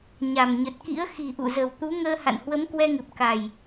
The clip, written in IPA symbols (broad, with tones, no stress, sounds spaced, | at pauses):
ɲ a˨˩ m ɲ ə˨˩ t̚ k ḭ˧˥ ə̯ x i˨˩ ʔ ṵ˧˨ z ə˨˩ w t̪ u˨˦ ŋ əː˧ h a̰˧˨ n h w ə˨˦ m k w ɛ˧ ŋ ɨ˨˩ p̚ k a˨˩ j